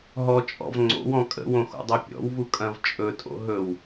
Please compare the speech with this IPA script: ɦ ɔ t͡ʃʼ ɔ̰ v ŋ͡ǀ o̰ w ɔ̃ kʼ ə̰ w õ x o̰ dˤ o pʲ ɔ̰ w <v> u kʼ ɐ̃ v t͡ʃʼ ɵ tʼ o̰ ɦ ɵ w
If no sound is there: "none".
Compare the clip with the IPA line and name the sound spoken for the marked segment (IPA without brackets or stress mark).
v